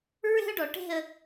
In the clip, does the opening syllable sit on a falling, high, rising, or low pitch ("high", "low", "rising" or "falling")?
high